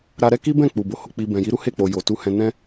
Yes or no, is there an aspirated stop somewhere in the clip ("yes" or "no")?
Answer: no